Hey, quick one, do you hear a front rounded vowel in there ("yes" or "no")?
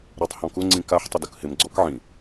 no